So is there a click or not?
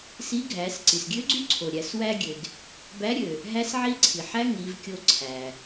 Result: yes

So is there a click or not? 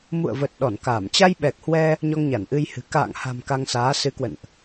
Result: no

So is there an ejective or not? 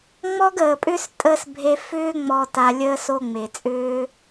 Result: yes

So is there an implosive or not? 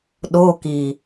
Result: yes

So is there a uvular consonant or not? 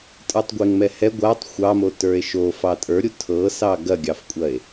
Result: no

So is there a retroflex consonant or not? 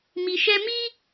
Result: no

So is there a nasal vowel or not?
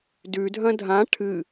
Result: yes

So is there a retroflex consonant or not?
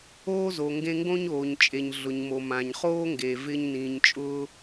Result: no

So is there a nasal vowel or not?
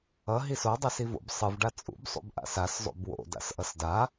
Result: no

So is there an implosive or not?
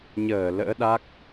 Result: yes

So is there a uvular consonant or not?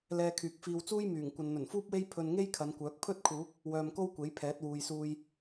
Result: no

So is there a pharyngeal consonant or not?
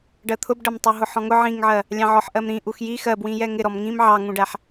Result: yes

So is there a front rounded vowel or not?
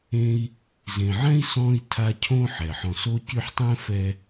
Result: yes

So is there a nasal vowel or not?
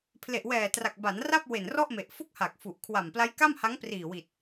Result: no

